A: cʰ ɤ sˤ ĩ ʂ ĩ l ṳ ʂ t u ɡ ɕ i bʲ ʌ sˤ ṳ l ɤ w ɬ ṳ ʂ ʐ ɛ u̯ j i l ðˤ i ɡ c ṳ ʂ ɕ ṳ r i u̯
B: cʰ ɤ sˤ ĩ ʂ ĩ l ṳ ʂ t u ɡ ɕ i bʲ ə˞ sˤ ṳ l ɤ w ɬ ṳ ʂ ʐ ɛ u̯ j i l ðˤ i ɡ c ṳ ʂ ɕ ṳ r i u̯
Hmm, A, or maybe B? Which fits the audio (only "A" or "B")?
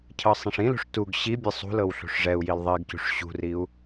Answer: A